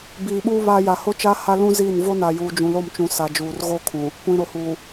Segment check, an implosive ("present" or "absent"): present